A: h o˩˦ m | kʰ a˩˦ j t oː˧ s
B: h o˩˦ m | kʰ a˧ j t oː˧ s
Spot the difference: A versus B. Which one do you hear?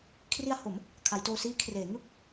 A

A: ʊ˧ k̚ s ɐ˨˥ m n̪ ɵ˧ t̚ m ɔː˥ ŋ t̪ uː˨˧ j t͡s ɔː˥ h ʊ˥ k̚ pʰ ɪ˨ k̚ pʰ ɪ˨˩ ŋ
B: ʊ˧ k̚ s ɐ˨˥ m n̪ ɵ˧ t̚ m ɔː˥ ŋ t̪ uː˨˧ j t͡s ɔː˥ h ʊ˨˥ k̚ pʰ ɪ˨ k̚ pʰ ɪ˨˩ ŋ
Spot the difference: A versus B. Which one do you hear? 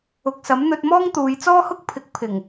A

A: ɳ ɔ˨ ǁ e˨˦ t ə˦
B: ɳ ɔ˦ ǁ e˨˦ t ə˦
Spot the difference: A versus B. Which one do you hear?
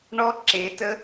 B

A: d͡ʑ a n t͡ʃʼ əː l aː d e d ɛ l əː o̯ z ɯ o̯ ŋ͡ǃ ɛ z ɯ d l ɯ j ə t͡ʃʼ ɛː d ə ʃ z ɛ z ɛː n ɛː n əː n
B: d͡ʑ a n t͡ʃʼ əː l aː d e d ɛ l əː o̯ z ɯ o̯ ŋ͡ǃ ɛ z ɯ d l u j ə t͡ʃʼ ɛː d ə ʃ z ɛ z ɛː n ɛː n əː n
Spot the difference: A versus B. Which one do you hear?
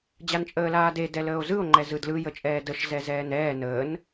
A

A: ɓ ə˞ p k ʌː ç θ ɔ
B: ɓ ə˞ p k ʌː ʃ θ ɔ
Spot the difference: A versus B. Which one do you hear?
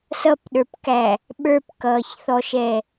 A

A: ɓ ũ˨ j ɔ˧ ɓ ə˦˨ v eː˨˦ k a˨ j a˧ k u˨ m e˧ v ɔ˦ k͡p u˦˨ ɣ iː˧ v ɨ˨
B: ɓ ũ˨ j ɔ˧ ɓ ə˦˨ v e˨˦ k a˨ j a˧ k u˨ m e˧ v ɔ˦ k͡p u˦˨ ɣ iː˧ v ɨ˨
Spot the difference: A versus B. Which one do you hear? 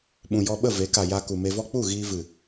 B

